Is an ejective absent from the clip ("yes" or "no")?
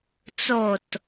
yes